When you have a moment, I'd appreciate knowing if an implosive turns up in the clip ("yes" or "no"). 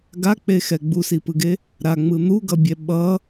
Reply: yes